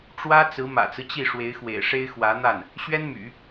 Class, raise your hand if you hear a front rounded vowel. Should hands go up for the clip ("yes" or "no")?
yes